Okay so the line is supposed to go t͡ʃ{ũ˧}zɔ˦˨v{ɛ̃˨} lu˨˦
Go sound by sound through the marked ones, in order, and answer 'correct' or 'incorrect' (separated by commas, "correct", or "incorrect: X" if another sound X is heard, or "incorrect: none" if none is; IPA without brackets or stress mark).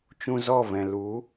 correct, correct